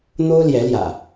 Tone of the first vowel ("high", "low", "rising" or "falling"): high